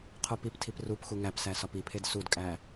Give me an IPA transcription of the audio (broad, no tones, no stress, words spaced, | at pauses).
qʰopiptʰip rupxu ŋæpsæ sɒpipʰed sudkʼæ